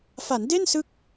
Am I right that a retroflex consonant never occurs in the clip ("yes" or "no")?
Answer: yes